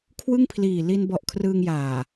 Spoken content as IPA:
kʰ w ɯ˥˩ ŋ pʰ l iː˨˩ l i˧ n b ɔ˨˩ ʔ kʰ r ɯː˧ ŋ j aː˨˩

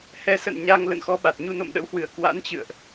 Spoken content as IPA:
h ɛ˨˦ s ə̰˧˨ n ɲ a˧ ŋ l ə̰˧˨ n x ɔ˧ ɓ a˨˩ t̚ ɲ u˧ n o̰˧˨ m ɗ ə̰˧˥ w h w ɨ˧˩ ə̯ k w a̰˧˥ n t͡ɕ ɨ̰˧˨ ə̯ ʔ

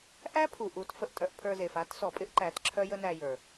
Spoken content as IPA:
ʔ æ˦ pʰ u˨ ʔ u˨˦ t f ə˨ ʔ tʼ œ˧ ʔ pʰ ə˞˧ z e˨ f a˦ t s ɔ˨ pʼ ɪ˦ ʔ ǃ æ˨˦ t ǁʰ œ˦ j ə˦ n æ˧ j ə˞˨

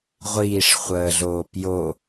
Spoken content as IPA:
ʁʷ iː ʂ χʷ əː ɮ oː p j o

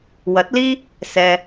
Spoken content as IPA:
w ɐ˨˥ t̚ l iː˥ | s ɛː˧

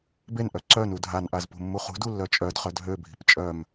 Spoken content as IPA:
b e n ʔ œ ǀ œ n u dʱ a n ʔ a z p ṳ mː u χ ṳ d u lː œ t͡ʃʼ œ d χ œ d ɦ ø bʱ i̤ p t͡ʃʼ œ m

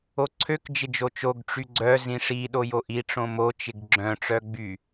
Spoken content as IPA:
o ǀʰ ø k d͡ʒ ɪ d͡ʒ o t͡ʃ o ɡ ʈ͡ʂ y ɡ͡ǀ œ z ĩ ʂ i ɗ o j o ʔ i ʈ͡ʂ õ m o t͡ʃ ɪ ɡ ɡ͡ǁ œ̃ ʈ͡ʂ œ ɡ͡b y

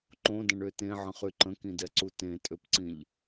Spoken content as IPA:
ǃ õ d ə̃ ɳ ø t ẽ ʕ ə̃ χ y ǃ ə̃ k ĩ d ɛ ǀ u t ẽ tʼ ø p ǀ ĩ ʎ

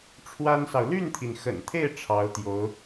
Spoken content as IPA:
ʈ͡ʂʰ w a˥ n s ɑ˨ ʊ̯ l y˥˩ n t̪ʰ i˩ n x ə̰˨˩ n t̪ʰ e˥˩ ɪ̯ ʈ͡ʂʰ ɑ˧˥ ʊ̯ t̪ j o˧˥ ʊ̯

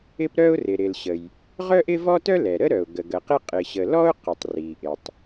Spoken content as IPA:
ɪ˥ p ɾ œ˥ ʊ̯ r ɪ˩ ɾ ɪ˩ l ɕ ə˩ j | ʁ œ˥ ʔ ɪ˥ v ɔ˥ t œ˥ l ɛ˩ ɾ ə˥ ɾ œ˩ ʊ̯ ɡ ə˩ ɡ ə˩ q ɪ˥ qʼ ɪ˩ ɕ ə˩ l ɔ˥ ʊ̯ q ɪ˩ tˤ r i˩ ʔ ɪ˩ tˤ

